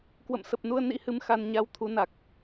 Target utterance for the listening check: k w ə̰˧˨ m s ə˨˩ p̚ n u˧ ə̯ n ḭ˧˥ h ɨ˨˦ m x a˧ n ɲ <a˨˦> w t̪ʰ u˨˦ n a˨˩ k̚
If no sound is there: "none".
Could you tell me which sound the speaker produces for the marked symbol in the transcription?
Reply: a˧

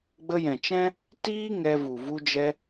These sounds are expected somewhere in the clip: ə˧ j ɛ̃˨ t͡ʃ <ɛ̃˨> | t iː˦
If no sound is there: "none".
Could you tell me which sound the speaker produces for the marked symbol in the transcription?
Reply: ɛ̃˦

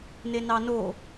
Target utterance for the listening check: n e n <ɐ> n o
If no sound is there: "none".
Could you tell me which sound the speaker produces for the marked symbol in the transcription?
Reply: ɑ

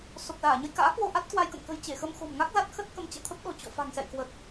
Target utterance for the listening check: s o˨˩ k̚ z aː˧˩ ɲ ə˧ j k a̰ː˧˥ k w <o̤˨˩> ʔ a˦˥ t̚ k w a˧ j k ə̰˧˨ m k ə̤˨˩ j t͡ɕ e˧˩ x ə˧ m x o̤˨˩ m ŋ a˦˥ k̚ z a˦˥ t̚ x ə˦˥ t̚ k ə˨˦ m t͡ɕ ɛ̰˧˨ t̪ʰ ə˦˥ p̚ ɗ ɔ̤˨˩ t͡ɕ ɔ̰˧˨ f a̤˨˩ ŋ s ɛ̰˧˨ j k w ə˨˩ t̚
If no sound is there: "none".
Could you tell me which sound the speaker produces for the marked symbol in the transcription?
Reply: o˧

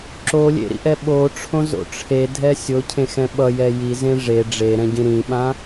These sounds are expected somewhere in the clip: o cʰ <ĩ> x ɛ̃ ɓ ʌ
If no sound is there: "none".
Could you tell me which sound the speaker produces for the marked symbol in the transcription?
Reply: ẽ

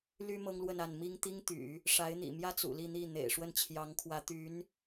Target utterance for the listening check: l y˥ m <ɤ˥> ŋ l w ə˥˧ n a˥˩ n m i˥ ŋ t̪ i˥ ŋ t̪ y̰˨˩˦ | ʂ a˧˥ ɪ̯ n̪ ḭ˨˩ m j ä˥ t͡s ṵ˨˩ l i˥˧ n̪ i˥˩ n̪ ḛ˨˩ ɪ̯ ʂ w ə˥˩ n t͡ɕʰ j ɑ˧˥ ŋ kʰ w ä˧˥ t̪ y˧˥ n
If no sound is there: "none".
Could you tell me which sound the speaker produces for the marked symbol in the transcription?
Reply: ɤ˥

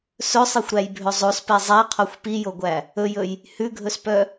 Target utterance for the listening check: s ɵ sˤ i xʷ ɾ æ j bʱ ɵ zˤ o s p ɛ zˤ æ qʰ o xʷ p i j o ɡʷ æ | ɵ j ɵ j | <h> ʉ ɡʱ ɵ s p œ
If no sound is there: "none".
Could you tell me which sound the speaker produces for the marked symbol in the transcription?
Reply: h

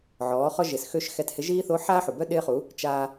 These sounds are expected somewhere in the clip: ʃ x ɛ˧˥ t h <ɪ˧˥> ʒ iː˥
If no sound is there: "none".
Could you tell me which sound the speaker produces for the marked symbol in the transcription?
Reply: ɪ˧˥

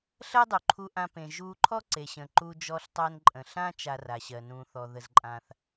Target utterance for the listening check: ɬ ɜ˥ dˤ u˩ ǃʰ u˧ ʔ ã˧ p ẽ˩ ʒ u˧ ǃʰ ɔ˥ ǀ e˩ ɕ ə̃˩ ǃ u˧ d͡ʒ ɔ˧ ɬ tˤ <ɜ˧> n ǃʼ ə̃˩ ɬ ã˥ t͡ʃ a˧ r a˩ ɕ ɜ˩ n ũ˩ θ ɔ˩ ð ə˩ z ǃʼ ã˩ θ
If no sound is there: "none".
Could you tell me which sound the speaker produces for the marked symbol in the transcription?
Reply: ɜ˧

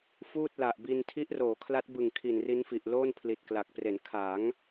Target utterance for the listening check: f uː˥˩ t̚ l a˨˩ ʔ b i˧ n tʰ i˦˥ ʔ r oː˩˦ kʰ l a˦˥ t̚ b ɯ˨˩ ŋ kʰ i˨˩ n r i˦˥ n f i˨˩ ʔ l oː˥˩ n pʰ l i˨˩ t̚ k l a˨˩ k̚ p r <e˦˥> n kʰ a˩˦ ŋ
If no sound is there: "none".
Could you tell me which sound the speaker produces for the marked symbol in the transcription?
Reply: e˩˦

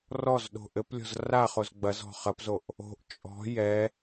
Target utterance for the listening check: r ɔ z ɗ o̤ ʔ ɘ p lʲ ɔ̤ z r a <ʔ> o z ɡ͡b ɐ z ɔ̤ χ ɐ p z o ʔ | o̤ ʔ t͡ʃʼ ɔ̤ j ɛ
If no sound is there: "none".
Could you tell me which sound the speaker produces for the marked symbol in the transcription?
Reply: χ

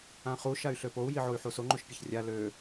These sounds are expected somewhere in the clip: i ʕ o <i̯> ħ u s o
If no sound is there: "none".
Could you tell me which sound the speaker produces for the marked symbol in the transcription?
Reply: y̯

